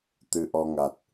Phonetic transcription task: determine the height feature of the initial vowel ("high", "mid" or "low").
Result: high